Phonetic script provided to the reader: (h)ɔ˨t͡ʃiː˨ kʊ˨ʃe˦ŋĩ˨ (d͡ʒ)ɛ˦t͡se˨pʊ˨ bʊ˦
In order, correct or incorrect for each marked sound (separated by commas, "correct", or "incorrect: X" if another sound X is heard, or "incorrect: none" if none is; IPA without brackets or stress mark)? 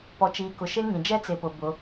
incorrect: p, correct